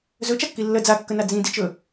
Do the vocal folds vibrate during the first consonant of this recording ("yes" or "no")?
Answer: yes